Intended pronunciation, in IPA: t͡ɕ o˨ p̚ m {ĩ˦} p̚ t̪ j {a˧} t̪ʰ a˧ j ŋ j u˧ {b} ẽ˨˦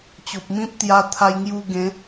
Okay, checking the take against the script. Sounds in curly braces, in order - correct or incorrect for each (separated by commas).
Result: correct, correct, incorrect